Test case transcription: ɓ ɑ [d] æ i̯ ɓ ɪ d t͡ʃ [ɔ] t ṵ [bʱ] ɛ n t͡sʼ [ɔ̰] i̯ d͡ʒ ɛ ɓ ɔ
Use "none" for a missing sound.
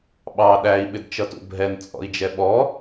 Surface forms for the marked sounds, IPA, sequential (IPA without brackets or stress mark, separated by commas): ɗ, ʌ, bʱ, ɔ̰